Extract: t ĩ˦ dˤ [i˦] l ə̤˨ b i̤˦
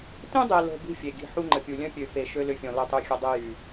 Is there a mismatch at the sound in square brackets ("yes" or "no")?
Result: yes